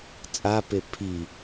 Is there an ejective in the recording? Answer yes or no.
yes